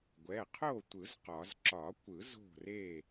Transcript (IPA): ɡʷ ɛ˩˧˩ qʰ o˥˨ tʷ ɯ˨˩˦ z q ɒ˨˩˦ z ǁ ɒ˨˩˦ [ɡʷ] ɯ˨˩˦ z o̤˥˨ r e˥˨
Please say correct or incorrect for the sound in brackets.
incorrect